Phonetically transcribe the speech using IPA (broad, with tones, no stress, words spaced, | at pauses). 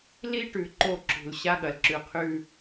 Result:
li˦ʈʉ˨ ǃo˦˨ǁṳ˨l ɕa˦ɠɐ˨lǁʉ˨˦qʰʉ˦